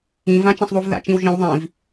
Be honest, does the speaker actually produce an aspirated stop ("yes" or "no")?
no